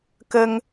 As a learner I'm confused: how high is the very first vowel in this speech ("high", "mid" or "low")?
mid